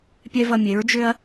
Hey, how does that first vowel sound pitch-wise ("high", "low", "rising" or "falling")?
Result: high